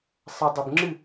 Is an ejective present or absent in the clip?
absent